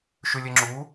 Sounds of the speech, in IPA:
ʃ y lʲ e ŋ͡ǁ u

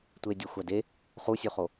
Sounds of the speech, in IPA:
tʷ e dʲ æ xʷ æ d e | χ u sʲ u χ o

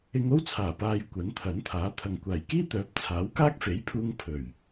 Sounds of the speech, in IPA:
ɪ˧ ŋ o˥ w t͡sʰ aː˨˩ p aː˨ j kʷ ɐ˨˥ n t̪ʰ ɐ˨˥ n t̪ʰ aː˨˥ t̪ʰ ɐ˨ ŋ kʷ aː˨˩ j k iː˥ t̪ œː˨˥ p̚ t͡sʰ aː˨˥ w k aː˥ k̚ f e˨˥ j pʰ uː˧ ŋ pʰ ɵ˨˩ ɥ

